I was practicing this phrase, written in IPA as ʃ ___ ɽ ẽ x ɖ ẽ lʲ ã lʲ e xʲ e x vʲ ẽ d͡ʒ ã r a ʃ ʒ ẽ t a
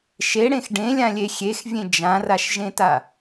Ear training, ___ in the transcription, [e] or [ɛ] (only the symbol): e